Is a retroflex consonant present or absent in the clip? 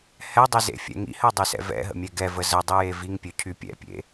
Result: absent